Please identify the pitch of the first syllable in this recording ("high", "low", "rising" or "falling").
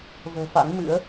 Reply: low